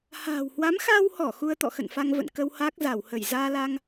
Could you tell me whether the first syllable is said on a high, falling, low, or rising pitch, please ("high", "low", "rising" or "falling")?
low